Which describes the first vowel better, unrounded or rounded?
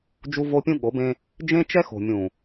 rounded